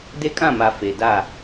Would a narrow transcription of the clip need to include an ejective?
yes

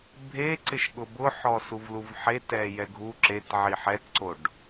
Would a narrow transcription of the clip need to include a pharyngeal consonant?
yes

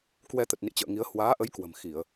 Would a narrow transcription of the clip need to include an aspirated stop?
no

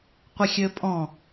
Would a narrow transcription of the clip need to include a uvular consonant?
yes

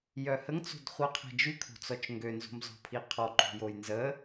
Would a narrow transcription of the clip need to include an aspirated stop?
yes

